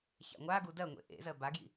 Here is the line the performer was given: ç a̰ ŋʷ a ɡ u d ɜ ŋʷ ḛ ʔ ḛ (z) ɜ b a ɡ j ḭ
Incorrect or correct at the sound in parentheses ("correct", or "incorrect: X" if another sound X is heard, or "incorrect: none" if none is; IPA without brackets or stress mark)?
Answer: correct